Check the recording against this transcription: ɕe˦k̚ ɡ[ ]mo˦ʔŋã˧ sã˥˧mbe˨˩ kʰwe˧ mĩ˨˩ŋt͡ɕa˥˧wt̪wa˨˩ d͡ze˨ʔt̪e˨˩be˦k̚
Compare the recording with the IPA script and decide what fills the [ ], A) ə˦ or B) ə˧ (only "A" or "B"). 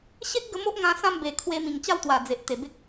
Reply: B